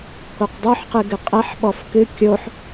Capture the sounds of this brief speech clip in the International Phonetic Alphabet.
k o q dˤ o ħ q ɨ ɡ ɨ qʼ ɛ ħ ɓ ɔ f k ɨ kʲ o ħ

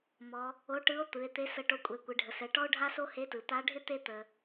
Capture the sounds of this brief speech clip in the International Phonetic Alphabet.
m ɔ˩˧ | o˧˥ ʈ ɯ˧˥ o̯ t̪ ɯ˩˧ e̯ t̪ e˧˥ s ə˧ ʈ o˧ kʷʼ ɛ˩˧ kʷ ɪ˩˧ ɖʱ ə˩ s ɛ˩˧ ʈ ɔ˥ o̯ ɖʱ a˥ s o˥ h e˧˥ t ɯ˩ t̪ a˧˥ ɖʱ ɪ˥ t̪ e˥ t̪ ə˩

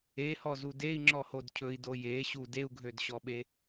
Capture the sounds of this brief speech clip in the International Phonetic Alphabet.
e h ɔ z u d e i̯ ŋ͡ǁ ɔ h o d cʰ ɵ i̯ d o j e ɕ u d e u̯ ɡʱ ø d ɕ ɔ ɓ e

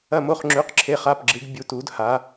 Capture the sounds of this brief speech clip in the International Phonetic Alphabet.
ɐ˧˩ m o˧˩ χ ŋ͡ǁ ʉ˩˧˩ q ǁʰ e˩˧˩ χ a˩˧˩ p ɡ͡ǁ ɨ˩˧ ɡ bʲ u˩˧˩ t u˩˧ d h a˩˧

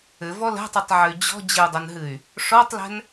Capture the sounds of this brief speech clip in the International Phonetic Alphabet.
ɘ v ɔ l ɛ̤ tˤ ɨ tˤ ʕ ɘ y̯ d͡ʑ ɔ̤ d͡ʑ ɘ u̯ dˤ ɐ n ɦ ɨ y̯ | ʂ ɔ tˤ l ɛ̤ n

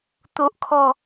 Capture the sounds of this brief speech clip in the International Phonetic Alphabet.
t̪ o˦ ʔ kʰ ɔ˥˧

